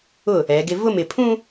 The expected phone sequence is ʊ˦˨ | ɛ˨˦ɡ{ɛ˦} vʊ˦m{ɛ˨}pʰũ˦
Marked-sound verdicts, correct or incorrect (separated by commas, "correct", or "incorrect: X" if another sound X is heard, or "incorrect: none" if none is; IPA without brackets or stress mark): incorrect: ɪ˦, incorrect: ɪ˨